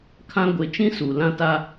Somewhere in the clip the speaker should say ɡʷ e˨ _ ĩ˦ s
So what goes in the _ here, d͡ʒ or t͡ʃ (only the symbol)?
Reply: t͡ʃ